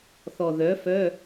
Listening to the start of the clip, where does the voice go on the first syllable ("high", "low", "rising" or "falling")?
low